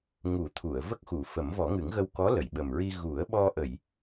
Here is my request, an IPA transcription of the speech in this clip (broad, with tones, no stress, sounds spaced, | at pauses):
ŋ u˨˩˦ t̪ʰ u˨˩˨ ə̯ v ə˦˥ k̚ x u˨˩˨ f ə˨˩˦ m v ɔ˨˩˦ ŋ ɨ˨˩˦ ŋ ɣ ə˧ w k ɔ˧˥ l ə˨˩˨ j ɓ ə˨˩ m ɹ i˧ ɣ u˨˩˦ ə̯ ɓ ɔ˧ ʔ ə˨˩˨ j